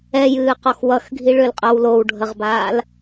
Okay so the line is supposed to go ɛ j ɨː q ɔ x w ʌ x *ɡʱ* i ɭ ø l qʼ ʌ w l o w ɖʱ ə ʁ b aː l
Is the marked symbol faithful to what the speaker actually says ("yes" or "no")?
yes